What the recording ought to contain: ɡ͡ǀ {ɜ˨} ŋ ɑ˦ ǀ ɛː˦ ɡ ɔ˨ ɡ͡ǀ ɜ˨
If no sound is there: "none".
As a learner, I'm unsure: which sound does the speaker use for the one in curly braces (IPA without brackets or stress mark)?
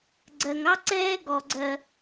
ɜ˨